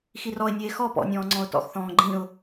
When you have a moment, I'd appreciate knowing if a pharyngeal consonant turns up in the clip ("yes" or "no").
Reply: no